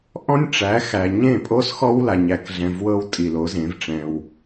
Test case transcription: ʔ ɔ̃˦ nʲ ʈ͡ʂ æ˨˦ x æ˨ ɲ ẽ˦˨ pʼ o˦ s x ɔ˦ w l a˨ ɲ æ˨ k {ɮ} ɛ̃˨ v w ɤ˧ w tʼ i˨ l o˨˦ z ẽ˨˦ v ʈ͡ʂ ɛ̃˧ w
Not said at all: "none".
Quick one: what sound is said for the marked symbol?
ɮ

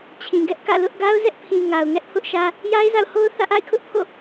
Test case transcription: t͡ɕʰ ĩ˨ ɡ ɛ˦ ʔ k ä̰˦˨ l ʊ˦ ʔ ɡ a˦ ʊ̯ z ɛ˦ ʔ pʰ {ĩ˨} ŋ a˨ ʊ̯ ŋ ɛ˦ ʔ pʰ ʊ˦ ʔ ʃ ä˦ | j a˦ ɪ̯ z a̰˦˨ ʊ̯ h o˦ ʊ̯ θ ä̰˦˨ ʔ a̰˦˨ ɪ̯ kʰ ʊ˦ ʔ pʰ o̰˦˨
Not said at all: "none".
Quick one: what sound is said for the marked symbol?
ĩ˨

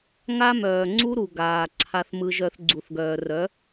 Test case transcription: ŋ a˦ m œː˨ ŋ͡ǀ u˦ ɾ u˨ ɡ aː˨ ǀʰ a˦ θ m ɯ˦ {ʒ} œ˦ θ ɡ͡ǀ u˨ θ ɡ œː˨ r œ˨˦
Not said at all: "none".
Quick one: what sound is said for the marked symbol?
ʒ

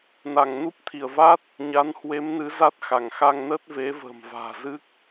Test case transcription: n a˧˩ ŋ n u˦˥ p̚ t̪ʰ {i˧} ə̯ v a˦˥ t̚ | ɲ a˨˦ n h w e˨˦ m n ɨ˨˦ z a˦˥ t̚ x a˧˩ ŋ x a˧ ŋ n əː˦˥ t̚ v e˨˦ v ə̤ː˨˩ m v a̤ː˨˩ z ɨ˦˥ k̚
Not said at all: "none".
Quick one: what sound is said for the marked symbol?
i˧˩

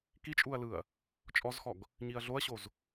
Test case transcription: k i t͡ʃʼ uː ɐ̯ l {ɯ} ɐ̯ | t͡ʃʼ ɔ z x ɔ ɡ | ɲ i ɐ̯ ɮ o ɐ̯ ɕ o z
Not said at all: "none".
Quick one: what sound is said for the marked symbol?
ɯ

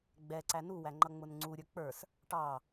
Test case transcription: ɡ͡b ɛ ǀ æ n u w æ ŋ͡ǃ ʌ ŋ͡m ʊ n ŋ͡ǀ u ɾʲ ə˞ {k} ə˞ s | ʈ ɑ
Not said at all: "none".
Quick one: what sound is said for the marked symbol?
k͡p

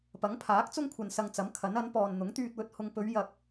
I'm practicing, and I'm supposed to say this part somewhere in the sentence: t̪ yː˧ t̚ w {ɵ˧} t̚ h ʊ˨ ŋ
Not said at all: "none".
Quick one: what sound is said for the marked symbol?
ɵ˧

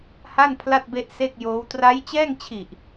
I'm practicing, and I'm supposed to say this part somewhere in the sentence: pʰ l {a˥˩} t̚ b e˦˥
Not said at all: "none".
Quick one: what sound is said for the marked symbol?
a˥˩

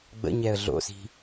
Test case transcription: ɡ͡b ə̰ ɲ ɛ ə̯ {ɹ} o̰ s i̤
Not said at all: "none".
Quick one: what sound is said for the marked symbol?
ɮ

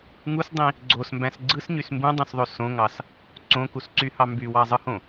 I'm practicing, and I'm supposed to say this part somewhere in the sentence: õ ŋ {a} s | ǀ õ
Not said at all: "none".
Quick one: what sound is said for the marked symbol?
ɑ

